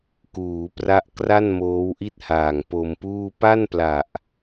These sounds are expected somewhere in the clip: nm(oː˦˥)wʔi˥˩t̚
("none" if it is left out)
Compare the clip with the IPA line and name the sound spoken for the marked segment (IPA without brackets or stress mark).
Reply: oː˦˥